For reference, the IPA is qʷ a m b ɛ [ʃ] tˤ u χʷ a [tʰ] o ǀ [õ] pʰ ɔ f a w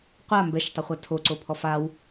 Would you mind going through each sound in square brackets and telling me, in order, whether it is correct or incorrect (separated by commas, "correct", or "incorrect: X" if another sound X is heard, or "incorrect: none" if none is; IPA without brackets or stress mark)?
correct, correct, incorrect: o